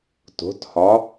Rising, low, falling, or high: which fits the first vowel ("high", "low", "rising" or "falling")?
rising